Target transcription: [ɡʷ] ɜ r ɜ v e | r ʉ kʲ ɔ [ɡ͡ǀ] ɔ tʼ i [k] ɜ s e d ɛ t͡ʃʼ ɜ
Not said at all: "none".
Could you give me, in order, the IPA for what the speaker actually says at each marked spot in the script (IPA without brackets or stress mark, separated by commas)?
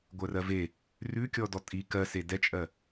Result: ɡʷ, d, k